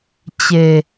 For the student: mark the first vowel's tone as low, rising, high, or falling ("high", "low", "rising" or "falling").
low